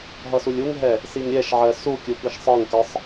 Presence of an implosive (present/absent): absent